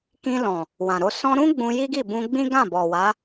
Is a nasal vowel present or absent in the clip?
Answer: present